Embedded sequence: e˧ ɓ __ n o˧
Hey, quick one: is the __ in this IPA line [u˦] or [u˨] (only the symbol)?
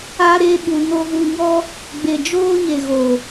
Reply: u˨